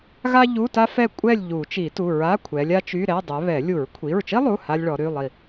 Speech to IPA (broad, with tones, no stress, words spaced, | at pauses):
ɣa˥ʎu˧˥˧ta˥ fɛ˦˨kʷʼɛ˦˨lʲ ʎu˨˩˦ t͡ʃi˨˩˦tu˩˧˩ ɹa˧˥˧ kʷʰɛ˨˦lʲa˥t͡ʃy˧˥˧ɾɛ˧˥˧ dˤɛ˨˦βɛ˨˩˦ lʲu˨˩˦ɹkʷʰi˩˧˩ɹt͡ʃi˥lˠu˩˧˩ ha˥lʲɭɔ˨˦ɾy˧˥˧lˠi˦˨